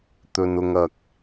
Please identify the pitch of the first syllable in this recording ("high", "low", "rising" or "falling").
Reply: low